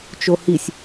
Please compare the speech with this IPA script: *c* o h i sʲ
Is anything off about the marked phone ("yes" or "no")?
yes